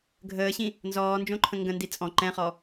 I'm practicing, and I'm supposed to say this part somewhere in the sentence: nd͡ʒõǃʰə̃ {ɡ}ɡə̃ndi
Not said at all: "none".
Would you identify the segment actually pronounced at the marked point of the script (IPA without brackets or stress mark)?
ŋ